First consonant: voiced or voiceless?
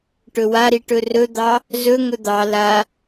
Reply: voiceless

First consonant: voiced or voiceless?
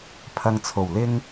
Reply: voiceless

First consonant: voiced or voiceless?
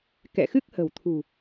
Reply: voiceless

